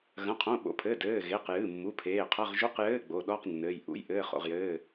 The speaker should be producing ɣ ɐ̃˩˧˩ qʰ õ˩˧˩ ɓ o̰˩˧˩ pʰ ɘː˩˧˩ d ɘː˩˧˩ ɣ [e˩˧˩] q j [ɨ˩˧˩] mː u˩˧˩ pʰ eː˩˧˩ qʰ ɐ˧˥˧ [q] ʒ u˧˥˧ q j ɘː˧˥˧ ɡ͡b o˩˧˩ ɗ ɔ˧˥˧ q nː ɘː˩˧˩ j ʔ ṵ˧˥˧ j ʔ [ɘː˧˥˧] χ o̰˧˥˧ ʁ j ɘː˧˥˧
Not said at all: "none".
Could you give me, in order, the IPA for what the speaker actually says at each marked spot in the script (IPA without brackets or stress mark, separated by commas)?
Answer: e˩˧˩, ɨ˩˧˩, ʁ, ɘː˧˥˧